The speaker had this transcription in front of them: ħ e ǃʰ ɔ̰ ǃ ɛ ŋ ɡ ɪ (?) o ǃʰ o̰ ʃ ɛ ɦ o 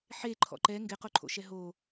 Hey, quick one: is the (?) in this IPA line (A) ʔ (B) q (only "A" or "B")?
B